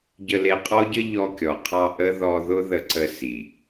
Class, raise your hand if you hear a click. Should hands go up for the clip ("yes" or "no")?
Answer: yes